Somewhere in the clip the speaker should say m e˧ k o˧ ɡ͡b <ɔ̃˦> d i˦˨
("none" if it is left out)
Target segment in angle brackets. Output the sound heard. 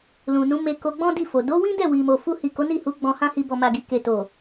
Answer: ɔ̃˦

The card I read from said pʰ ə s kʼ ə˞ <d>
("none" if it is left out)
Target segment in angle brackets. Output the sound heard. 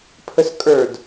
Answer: d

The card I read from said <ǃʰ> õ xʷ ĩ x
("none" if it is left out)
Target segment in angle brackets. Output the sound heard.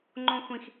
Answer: ŋ͡ǃ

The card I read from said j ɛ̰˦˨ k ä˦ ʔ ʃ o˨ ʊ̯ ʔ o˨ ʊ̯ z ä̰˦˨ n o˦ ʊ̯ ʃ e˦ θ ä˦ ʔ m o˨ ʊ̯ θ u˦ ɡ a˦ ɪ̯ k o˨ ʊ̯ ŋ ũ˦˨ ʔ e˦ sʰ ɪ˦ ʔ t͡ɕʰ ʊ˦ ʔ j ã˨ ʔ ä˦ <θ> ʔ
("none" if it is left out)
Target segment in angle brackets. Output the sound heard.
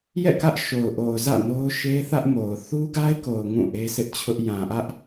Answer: none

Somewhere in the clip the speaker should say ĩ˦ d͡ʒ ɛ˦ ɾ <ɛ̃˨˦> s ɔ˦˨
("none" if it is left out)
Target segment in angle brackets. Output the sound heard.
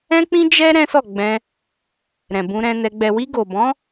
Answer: ɛ̃˦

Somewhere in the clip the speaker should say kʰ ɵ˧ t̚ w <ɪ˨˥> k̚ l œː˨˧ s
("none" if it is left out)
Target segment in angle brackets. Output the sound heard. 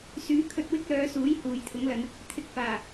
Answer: ɪ˥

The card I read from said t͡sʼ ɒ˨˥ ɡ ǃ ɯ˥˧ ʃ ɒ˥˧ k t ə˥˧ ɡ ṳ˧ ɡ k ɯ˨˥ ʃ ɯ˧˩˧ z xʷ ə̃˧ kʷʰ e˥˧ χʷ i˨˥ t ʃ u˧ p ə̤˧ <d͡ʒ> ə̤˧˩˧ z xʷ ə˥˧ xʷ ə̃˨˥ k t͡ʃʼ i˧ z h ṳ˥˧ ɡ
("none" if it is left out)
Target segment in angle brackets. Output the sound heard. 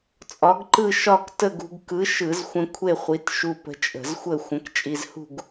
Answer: t͡ʃʼ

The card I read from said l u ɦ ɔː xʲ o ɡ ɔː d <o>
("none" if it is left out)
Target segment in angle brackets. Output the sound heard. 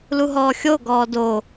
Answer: o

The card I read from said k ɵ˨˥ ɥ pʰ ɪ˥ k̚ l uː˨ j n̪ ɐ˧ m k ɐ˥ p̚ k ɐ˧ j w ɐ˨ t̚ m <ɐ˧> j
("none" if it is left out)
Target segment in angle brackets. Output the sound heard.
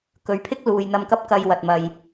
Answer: ɐ˨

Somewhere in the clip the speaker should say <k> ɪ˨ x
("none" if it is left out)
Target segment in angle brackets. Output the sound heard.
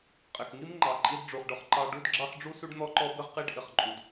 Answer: qʼ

